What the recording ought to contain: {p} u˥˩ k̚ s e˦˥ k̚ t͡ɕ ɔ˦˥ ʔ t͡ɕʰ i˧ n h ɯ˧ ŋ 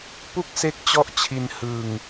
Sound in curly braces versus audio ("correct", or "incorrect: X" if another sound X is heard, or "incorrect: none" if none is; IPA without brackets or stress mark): correct